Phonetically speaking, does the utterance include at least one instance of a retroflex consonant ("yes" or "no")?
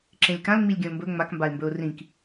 no